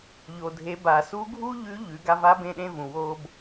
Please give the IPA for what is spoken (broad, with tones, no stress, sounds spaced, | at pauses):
ʎ o˩ dʱ e˩˧ b a˩ s u˧˥ ɡʱ u˥ ʎ ʉ˧˥ ʎ ʉ˩˧ ɡ a˧ v a˧˥ b ẽ˧ ɗ ẽ˧ v ũ˩ w o˧ b